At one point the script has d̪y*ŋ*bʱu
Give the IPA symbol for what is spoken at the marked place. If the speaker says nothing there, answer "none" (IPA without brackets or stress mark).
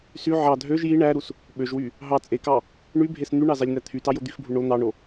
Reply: x